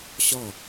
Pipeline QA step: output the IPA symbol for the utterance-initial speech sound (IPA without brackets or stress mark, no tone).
ɕ